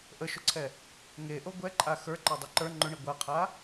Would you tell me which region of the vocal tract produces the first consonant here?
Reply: throat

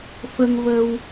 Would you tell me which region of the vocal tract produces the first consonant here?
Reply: lips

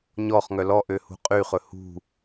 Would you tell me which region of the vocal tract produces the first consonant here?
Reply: palate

